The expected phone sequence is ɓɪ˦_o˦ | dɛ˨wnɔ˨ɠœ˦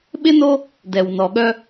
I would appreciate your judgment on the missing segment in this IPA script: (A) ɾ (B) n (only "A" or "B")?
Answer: B